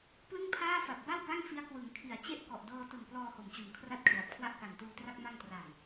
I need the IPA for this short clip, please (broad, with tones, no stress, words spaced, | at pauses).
plɯ˥˩ŋpʰaː˥˩fa˨˩p̚ ba˥˩wba˥˩ŋfi˦˥a̯ kwɯ˩˦ŋkʰi˩˦a̯ t͡ɕe˦˥ʔ kɔ˨˩ʔdɤː˧tɯ˨˩ŋ plɔː˧ho˩˦mt͡ɕu˩˦nkʰra˥˩t̚ kʰla˨˩p̚kʰwa˥˩ʔ ka˨˩ntuː˧tra˥˩k̚ ma˧ŋtra˨˩n